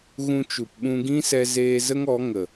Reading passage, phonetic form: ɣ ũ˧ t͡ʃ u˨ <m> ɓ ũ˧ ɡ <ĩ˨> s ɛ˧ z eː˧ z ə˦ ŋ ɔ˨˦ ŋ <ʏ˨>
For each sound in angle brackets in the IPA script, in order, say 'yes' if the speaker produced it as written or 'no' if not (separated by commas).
no, no, no